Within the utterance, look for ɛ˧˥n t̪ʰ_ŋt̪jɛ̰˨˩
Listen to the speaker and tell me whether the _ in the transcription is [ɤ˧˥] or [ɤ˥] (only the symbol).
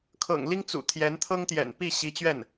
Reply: ɤ˥